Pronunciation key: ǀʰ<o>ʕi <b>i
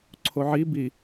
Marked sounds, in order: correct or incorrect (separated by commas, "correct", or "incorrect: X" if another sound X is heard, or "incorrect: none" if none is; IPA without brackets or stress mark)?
correct, correct